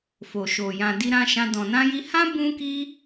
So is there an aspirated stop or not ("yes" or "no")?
no